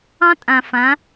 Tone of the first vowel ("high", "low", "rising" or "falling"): high